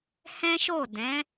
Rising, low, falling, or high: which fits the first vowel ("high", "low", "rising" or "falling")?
high